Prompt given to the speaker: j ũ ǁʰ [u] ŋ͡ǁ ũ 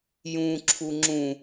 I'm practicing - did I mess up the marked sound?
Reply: no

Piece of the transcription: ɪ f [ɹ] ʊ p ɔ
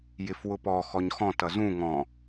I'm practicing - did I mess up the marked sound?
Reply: yes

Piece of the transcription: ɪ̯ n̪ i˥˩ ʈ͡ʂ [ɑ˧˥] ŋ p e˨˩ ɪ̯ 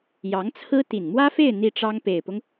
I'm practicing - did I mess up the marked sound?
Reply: yes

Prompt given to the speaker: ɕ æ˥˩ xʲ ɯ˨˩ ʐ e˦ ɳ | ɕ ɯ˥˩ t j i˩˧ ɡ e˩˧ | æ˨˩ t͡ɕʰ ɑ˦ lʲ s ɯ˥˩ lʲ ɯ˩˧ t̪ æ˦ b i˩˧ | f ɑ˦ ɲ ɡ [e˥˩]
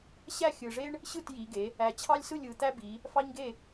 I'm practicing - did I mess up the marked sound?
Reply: no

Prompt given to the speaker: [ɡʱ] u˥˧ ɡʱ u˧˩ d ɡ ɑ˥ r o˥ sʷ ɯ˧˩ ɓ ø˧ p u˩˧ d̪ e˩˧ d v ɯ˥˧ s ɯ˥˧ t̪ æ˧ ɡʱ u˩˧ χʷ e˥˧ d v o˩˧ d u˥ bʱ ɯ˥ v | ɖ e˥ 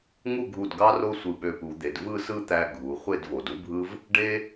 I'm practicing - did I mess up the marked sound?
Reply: yes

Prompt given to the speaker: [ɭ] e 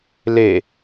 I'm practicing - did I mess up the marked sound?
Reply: yes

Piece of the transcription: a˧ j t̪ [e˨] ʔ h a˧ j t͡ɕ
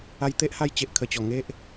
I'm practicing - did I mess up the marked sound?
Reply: yes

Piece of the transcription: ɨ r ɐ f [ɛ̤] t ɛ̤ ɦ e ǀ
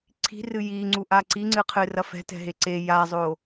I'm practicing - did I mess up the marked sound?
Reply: no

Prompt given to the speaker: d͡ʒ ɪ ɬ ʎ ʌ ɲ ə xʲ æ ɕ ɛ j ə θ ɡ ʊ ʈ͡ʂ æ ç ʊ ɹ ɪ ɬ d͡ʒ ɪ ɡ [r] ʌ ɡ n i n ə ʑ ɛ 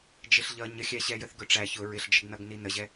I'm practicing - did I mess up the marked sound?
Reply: yes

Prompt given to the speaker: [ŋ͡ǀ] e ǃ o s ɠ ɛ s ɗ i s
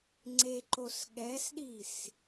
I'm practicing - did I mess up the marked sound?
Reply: no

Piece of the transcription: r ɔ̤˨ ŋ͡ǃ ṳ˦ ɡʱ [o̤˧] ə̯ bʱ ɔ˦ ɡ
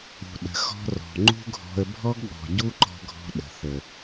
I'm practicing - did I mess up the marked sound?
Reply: yes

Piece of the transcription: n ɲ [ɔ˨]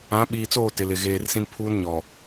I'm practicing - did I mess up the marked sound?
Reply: no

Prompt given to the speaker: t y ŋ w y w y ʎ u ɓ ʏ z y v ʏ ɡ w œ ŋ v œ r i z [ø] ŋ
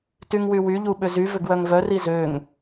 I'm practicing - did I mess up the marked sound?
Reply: no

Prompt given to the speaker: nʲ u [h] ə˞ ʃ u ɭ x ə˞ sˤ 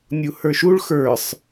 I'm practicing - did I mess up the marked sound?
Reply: no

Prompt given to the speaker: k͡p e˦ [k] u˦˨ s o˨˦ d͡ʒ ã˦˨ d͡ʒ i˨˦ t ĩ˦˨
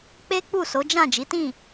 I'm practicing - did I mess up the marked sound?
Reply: yes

